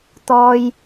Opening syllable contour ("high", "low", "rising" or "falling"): high